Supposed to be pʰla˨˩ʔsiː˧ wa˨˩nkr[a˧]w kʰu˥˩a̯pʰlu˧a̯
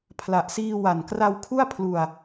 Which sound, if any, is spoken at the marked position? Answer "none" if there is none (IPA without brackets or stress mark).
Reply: a˧